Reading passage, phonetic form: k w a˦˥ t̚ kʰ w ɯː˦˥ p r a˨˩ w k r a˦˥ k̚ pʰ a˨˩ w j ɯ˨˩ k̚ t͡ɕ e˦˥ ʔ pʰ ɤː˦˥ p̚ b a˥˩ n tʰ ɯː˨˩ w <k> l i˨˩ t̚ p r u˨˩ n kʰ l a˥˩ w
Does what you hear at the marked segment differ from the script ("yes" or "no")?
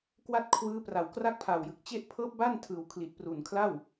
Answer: yes